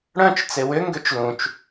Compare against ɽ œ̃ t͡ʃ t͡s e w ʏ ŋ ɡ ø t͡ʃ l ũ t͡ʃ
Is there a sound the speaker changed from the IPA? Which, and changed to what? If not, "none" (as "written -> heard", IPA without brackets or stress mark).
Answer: none